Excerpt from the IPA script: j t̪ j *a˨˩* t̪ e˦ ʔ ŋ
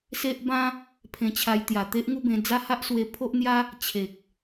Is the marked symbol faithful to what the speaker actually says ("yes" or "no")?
yes